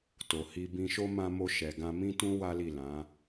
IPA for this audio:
t o˨ h i˧ b ĩ˧ ʃ o˦ m ã˧ m o˧ ʃ ɛ˨ ɡ ã˧ m ĩ˦ t ũ˦ w a˦ l i˦˨ l ã˨˦

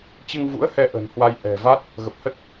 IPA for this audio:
t͡ɕ ɨ˧ ŋ v ṵ˧˥ ə̯ h ɛ˧ ʔ ə̤˨˩ n h w a˧ j ʔ ɛ̤˨˩ v a˦˥ t̚ | ɣ ə˨˩ p̚ h ə˦˥ t̚

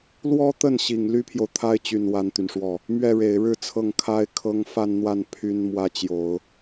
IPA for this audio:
l w ɔ˥ t̪ ə˥˩ n ɕ i˨˩ ŋ l y˥ pʰ j o˨ ʊ̯ t̪ʰ a˥ ɪ̯ t͡ɕ y˨˩ n w a˥ n t̪ y˨ n ʂ w ɔ˥˩ | m ɥ ɛ˥˩ ɻ e˨˩ ɪ̯ ɻ ɻ̩˥˧ t͡sʰ ɤ˥˩ ŋ kʰ a˥ ɪ̯ kʰ ɤ˥ ŋ f a˥˧ n n̪ w a˥˩ n pʰ y˥ n m w ä˥ t͡ɕ j o˨˩˦ ʊ̯

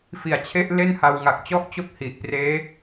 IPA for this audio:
f i˨˩ a̯ t͡ɕʰ e˦˥ ʔ l e˥˩ n h a˧ w ŋ a˨˩ k̚ t͡ɕ ɔ˥˩ ʔ t͡ɕ o˥˩ k̚ h i˨˩ ʔ p r eː˦˥

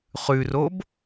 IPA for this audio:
χ ʉ r o b

